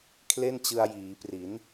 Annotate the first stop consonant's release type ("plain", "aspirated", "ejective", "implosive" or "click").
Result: aspirated